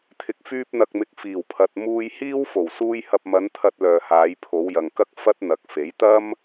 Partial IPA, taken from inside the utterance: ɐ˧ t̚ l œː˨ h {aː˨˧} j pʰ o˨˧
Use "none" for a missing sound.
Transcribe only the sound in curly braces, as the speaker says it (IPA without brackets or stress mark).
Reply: aː˨˧